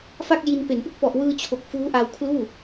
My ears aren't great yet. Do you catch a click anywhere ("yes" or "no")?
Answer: no